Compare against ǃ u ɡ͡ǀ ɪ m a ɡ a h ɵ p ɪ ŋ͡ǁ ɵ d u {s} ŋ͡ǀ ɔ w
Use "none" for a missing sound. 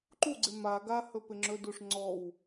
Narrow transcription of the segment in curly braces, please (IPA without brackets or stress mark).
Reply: ʂ